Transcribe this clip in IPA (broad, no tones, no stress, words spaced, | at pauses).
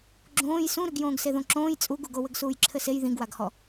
ɡ͡ǁõːj sũɾɨɡ jõːɡseðõǁõːj t͡sʼuɡuɡo wɘɡsuːjǁʰɘsej ðĩɡwaɡhɔ